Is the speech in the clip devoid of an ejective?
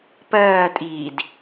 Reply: no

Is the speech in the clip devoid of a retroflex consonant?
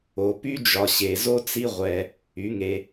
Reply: yes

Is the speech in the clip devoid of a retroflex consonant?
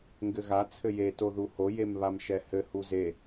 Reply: yes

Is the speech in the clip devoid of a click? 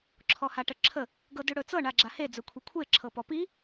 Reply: no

